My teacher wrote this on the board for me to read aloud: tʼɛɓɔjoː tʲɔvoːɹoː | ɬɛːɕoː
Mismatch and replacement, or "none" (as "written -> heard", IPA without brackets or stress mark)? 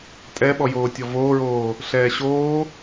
none